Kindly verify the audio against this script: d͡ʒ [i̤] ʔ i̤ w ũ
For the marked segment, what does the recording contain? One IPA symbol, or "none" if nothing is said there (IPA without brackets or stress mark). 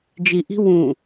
i